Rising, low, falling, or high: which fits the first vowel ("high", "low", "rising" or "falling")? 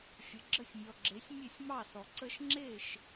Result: low